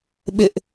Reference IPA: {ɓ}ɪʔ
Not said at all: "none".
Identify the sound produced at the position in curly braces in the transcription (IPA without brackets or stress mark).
ɓ